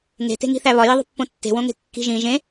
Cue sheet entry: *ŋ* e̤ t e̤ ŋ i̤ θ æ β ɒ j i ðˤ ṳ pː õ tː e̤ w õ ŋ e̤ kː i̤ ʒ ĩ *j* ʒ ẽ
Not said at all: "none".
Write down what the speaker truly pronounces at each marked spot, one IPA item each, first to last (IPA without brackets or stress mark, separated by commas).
ŋ, none